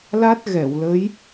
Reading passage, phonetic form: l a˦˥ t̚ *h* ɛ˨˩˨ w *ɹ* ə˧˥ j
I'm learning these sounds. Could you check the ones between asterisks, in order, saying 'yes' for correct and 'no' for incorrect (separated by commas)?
no, no